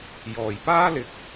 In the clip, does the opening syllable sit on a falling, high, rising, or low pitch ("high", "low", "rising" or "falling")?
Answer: low